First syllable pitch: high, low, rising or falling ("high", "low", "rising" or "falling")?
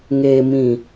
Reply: low